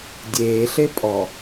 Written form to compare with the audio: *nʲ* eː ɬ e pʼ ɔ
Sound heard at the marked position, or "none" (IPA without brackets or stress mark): dʲ